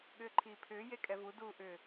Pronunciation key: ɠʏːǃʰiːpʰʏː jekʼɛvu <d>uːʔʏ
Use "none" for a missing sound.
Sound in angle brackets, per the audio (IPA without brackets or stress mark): d